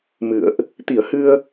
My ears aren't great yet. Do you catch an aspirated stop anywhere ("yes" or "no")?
no